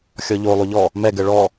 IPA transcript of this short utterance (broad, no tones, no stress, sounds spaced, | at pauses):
xʲ ɔ ʎ o lˠ o ʎ ɔ | m ɛ ɡ ɘ ɭ ɔ